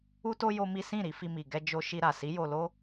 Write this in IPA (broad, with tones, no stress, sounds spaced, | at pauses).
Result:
u˦ t o˦ j o˦ m i˦ s ĩ˦˨ ɾ i˧ f i˧ m i˨ ɡ ɛ˧ d͡ʒ o˧ ʃ i˧ ɾ a˨ s i˨˦ j o˧ l o˦